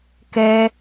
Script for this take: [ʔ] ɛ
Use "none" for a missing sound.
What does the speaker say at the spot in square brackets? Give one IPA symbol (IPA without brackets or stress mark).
k